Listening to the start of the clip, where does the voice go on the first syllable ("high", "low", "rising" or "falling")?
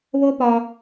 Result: high